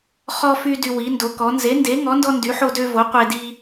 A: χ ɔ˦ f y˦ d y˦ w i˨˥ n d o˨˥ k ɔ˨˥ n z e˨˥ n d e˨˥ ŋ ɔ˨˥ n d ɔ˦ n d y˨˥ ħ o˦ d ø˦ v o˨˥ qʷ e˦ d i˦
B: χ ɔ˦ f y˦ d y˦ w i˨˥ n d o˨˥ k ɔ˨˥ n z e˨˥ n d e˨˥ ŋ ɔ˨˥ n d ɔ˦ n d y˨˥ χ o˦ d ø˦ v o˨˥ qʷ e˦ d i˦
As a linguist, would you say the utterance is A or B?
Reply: A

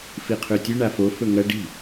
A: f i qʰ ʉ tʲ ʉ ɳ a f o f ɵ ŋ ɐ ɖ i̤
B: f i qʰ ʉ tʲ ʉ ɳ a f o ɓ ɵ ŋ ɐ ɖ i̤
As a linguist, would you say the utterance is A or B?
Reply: A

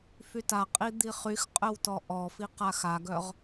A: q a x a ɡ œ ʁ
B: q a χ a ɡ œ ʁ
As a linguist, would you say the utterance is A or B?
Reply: A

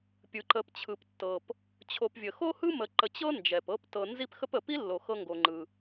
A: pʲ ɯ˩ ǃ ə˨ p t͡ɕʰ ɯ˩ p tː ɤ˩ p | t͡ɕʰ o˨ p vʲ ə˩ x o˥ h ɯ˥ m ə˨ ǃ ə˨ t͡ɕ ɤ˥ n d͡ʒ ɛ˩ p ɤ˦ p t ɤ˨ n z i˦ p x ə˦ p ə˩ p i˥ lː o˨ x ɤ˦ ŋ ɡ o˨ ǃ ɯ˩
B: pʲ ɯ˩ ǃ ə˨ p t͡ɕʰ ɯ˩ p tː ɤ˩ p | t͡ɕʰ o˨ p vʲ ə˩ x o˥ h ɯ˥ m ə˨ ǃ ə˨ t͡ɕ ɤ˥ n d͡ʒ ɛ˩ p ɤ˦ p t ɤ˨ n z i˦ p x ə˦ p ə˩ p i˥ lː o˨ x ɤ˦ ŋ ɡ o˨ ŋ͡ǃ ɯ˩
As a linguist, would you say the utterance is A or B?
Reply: B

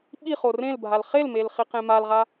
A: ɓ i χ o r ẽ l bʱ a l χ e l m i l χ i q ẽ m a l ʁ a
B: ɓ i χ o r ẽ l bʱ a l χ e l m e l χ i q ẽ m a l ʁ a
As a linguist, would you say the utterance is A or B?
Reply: B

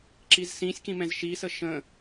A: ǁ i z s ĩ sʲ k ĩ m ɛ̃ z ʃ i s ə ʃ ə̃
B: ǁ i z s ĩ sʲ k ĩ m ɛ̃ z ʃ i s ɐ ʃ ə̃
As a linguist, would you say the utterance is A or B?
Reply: A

